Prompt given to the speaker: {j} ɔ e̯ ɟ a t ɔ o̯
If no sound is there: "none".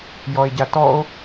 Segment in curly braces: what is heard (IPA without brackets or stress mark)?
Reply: j